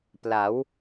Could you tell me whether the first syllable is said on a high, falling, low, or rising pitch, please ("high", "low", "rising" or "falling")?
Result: rising